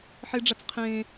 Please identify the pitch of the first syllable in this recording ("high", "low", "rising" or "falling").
high